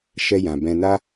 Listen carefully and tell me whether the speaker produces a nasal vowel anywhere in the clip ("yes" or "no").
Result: yes